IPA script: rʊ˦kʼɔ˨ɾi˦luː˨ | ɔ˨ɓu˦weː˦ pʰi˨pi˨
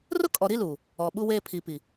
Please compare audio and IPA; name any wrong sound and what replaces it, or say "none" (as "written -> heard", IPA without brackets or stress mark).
none